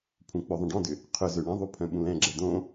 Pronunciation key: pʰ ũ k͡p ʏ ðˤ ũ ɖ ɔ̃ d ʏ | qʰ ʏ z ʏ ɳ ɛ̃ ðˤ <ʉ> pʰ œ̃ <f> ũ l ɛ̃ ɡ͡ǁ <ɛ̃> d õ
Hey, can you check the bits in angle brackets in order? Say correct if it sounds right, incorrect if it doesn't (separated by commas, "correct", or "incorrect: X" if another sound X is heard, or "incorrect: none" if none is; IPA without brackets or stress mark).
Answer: incorrect: u, incorrect: ɓ, incorrect: ɛ